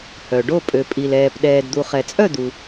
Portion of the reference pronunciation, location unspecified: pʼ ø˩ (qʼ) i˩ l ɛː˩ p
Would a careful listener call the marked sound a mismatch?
yes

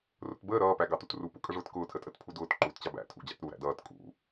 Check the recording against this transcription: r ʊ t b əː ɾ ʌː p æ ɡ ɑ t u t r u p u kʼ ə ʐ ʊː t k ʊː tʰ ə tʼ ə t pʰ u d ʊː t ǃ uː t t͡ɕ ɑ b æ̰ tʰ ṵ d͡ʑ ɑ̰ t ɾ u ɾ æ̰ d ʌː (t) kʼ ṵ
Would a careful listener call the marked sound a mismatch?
no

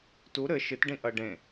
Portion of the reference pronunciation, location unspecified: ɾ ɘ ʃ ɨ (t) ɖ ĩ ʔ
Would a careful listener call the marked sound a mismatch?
no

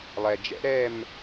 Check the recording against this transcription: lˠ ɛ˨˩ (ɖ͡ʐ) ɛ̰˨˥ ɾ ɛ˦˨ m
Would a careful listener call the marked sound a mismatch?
yes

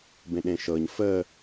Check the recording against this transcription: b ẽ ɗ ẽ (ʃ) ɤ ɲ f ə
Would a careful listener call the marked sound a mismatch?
no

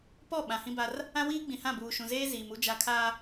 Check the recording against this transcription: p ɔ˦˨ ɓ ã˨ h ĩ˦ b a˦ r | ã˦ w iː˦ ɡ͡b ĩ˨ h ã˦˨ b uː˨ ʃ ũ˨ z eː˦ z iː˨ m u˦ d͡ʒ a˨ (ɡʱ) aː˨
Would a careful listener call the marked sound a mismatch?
yes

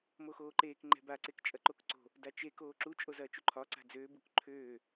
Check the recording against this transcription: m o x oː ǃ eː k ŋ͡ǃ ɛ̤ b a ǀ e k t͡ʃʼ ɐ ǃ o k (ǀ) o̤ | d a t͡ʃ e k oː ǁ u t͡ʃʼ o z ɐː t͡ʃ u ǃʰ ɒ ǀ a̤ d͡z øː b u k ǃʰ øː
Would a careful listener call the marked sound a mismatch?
no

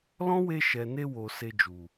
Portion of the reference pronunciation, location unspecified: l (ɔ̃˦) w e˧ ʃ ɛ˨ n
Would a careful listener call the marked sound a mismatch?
no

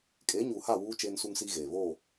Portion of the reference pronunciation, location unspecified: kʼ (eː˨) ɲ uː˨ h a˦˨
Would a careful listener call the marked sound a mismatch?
yes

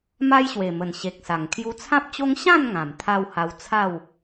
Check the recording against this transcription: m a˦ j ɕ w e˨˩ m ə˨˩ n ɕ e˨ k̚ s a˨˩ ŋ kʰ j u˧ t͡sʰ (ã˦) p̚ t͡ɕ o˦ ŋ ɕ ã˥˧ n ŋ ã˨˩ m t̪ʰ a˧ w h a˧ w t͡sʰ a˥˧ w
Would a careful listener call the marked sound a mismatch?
no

